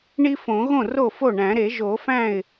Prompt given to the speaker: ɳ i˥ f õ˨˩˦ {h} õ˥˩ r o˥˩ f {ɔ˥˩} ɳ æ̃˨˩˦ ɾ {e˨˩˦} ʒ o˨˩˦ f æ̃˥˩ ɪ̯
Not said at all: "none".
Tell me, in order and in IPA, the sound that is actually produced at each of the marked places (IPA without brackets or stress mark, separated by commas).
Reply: ɣ, o˥˩, e˨˩˦